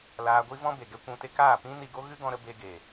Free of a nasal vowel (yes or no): no